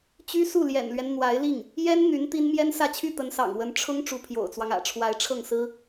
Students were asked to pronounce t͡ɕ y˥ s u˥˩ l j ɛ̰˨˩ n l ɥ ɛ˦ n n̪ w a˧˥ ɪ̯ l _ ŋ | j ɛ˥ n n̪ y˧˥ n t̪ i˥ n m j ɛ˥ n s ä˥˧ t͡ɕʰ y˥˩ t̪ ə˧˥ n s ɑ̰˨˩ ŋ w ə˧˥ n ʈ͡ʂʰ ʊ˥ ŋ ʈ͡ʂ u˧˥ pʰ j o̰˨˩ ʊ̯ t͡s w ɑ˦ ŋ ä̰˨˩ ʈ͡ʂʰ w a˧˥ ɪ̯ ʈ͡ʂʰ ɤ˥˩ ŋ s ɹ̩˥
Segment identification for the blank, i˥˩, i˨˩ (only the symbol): i˥˩